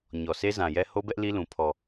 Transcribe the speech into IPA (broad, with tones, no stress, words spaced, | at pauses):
ɲɔ˨sʰe˦zã˨jɛ˦ ho˦bɛ˦ʔ li˦lũ˨ pʰɔ˨